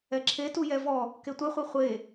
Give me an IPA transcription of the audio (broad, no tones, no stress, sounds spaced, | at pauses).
ɛ ǁʰ e t u j ɛ v ɔ | k e tʷ ɛ χʷ i χʷ e